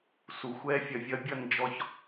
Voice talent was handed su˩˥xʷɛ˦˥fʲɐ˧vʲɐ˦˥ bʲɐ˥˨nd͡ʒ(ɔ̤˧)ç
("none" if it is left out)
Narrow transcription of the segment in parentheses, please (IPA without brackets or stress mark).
ɔ˧